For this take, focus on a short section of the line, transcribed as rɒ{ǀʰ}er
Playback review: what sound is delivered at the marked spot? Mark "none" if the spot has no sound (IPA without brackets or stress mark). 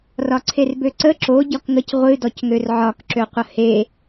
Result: ǀʰ